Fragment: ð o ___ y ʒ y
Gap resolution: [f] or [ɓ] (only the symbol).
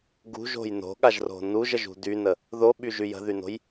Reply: ɓ